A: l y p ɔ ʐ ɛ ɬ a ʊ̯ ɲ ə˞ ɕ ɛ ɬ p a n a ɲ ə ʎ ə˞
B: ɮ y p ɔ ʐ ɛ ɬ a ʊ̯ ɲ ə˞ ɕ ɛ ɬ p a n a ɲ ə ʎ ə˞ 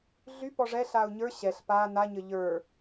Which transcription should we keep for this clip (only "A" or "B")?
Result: B